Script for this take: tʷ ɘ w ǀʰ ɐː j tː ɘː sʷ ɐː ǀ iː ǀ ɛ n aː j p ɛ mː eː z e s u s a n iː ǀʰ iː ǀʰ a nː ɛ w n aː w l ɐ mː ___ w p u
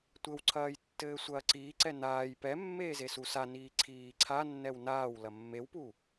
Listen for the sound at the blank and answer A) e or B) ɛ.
A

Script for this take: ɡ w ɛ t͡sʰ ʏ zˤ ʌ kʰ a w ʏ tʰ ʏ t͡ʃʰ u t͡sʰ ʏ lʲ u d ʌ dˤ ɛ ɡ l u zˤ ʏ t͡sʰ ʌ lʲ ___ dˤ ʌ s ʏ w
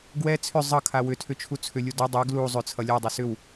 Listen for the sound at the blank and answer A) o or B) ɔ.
B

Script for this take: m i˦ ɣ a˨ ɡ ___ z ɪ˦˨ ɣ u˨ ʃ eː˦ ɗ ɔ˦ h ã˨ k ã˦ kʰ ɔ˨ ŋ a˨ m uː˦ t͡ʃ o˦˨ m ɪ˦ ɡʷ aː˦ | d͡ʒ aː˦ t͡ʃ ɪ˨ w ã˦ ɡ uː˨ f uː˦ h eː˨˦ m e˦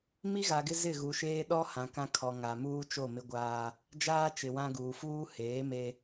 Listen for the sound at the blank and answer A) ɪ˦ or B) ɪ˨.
A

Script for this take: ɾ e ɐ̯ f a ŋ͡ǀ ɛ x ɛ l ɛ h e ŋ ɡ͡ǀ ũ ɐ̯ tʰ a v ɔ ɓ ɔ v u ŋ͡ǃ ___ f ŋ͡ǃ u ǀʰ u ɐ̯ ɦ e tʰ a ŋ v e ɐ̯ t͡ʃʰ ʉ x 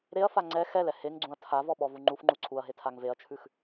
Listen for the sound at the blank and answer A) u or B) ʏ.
A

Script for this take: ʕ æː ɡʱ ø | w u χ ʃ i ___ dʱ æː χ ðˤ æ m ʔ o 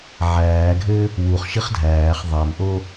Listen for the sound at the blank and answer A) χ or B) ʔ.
A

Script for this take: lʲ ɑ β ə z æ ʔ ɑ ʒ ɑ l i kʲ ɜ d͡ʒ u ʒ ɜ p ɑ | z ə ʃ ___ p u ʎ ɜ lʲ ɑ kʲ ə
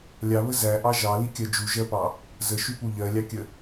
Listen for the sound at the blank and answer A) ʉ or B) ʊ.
A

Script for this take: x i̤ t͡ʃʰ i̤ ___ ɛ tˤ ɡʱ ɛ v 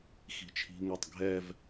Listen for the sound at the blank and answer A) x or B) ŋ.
B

